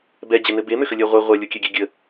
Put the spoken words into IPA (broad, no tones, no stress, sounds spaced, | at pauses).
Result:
b ɛ d͡ʑ ɘ n ɘ b e m ʏ x ə lʲ ɜ ʁʷ ɘ ʁʷ ɜ lʲ o kʲ ɛ ɡʲ ɛ ɡʲ ə